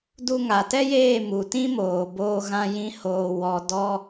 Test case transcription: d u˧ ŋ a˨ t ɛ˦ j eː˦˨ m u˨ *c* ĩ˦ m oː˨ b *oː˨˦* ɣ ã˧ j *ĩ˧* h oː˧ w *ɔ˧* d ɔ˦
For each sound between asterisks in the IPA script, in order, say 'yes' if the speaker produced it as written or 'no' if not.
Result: no, no, no, yes

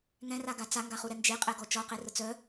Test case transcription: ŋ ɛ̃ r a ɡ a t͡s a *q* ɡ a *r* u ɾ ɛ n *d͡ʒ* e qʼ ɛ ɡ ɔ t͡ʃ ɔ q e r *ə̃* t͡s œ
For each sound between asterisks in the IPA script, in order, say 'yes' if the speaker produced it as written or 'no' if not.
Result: no, no, yes, no

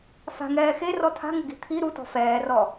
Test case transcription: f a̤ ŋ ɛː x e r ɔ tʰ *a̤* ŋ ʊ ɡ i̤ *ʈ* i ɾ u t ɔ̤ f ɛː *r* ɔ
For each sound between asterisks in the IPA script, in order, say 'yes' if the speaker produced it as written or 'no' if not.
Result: yes, no, yes

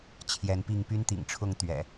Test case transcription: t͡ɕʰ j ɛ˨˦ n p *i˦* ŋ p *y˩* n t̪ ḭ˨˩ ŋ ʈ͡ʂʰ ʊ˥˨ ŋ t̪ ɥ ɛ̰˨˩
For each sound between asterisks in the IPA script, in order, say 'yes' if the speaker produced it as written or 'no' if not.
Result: no, no

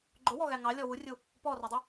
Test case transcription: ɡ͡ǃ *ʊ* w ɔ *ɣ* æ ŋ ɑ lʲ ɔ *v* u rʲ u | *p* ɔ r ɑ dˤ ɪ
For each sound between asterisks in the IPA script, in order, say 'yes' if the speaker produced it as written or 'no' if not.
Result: yes, yes, no, yes

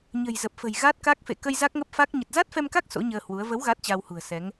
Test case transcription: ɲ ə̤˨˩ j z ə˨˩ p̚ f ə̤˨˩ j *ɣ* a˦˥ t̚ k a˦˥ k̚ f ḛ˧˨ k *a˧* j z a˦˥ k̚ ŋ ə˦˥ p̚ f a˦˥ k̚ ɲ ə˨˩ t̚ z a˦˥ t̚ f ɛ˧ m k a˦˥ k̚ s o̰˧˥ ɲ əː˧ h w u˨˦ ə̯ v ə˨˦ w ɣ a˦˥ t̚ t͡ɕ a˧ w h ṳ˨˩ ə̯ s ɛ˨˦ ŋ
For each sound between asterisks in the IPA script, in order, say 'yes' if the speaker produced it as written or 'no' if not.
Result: yes, no

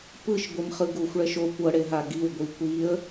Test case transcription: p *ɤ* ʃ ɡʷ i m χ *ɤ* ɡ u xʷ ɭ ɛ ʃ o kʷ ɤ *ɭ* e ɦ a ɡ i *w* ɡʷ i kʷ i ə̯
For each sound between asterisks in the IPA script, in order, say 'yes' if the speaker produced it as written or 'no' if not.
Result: no, no, no, yes

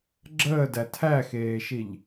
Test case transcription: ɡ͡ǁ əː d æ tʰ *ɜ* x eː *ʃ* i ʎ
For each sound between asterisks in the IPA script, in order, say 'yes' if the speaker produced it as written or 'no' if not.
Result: no, yes

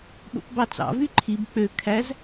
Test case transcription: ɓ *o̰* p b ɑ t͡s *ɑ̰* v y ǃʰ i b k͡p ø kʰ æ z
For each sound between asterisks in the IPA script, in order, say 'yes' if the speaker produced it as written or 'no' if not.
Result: yes, yes

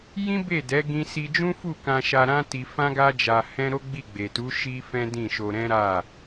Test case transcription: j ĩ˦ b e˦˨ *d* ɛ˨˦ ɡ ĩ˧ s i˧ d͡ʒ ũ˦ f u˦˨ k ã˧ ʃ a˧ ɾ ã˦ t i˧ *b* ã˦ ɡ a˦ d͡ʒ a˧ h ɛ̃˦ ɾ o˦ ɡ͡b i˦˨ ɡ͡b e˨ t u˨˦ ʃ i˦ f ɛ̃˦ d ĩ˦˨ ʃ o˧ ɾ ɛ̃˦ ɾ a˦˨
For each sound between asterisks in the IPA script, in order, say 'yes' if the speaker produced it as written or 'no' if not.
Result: yes, no

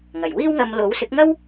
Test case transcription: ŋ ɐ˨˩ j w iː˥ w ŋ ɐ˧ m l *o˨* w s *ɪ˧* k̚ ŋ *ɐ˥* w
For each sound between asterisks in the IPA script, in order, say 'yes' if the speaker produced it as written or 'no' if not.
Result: no, no, yes

